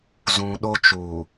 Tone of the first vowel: low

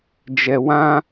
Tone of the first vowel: low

